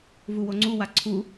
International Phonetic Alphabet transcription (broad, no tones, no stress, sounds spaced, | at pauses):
v u w o ŋ͡ǀ u w a ǀʰ u